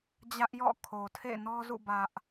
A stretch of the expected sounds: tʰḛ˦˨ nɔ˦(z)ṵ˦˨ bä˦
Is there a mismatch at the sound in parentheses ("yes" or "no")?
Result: no